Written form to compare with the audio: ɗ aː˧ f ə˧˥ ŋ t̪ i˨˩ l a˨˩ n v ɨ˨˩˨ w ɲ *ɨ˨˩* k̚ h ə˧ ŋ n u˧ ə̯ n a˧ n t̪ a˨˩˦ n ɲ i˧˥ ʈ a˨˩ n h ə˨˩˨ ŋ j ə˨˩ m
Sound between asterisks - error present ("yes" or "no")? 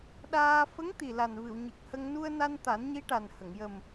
no